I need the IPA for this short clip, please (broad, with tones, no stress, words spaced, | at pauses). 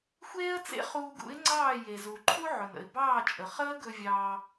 xʷeː˥ə̯t͡sḛ˥ χuː˧ɡṵ˩˥ɪ̯ŋ͡ǀɑː˥˩ je˩zu˩ ǃʰu˥ʕɵ˩nə̰˩ɪ̯ bɑː˥˩t͡ʃʼə˩ χəː˥ɡɵ˧ vʲɑː˧